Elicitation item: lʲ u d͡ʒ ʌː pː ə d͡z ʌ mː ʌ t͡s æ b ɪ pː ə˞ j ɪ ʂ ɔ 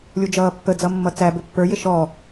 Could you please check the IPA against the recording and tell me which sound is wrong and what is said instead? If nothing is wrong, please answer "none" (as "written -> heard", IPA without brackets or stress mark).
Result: ʂ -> ʃ